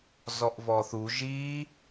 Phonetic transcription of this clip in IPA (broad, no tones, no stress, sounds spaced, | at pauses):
z ɔ ʔ v ɔ θ u ʒ i